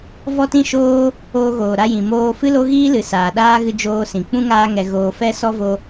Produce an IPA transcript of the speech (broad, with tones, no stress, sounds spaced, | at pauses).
v ɔ˦ t ĩ˦ ʃ oː˦ | oː˦ ɣ oː˨ ɾ a˦ j ĩ˨ m oː˧ f ɨ˦ l o˦ ɣ iː˦ l ɨ˨ s aː˨ ɗ aː˦ ɣ ɨ˧ d͡ʒ oː˧ s ĩ˨ k͡p ũ˦ ŋ aː˧ ŋ ɛ˨ ɣ oː˨ f ɛ˦ s ɔ˦ v o˧